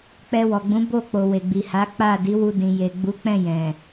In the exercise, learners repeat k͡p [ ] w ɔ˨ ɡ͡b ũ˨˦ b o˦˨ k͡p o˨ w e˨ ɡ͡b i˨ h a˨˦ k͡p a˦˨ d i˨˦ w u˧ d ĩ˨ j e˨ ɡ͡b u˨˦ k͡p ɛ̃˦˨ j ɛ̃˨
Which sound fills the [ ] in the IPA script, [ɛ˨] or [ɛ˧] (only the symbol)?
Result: ɛ˧